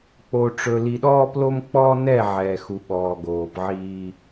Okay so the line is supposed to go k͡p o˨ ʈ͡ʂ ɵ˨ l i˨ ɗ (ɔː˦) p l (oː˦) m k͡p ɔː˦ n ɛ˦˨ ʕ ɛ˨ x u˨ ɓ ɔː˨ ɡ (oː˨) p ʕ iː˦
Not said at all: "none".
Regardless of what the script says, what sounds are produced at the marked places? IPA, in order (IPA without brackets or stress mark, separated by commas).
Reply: ɔː˦, o˦, oː˨